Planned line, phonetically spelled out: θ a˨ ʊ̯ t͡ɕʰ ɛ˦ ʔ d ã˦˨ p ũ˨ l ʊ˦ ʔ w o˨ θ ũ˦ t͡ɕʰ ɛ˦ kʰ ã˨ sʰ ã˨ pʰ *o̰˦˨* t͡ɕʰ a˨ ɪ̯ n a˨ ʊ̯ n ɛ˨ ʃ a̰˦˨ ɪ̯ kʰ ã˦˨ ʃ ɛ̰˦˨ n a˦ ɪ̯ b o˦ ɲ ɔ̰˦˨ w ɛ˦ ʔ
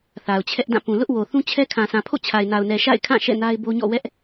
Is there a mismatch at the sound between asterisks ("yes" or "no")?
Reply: no